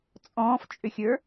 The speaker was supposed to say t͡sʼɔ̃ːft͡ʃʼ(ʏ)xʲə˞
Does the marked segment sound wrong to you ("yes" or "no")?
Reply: no